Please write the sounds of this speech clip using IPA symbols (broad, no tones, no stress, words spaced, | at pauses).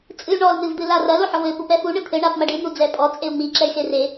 t͡sʼɨy̯ɳɔl n̪ɨvd̪ɨlarɐl oħɔvɘ pupɛfu ɳɨt̪ʰɘ ɳapmɐɖɨ n̪ud͡zɛpʼɔ t͡sʼeu̯ŋ͡mi ǁɛy̯xere